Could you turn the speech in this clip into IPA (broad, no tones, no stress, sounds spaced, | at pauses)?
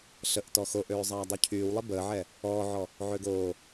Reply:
ɬ ə ʔ t ɔ x o ʔ øː zˤ aː dˤ y cʰ yː w lˠ i b əː ʕ ɛ | ɔː ʕ ɔ | ʕ ø ɡ oː